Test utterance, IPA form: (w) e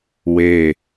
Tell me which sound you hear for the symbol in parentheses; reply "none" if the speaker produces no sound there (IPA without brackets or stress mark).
w